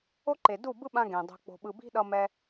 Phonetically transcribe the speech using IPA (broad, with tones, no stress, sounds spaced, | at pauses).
o˦ ǃ e˨ d u˦˨ b ɯ˦ ɓ ã˧ ɡ ẽ˨ dˤ o̤˧ k͡p o̤˧ ɓ ɯ˧ b i̤˦ ɗ ʌ˧ m ɛ˦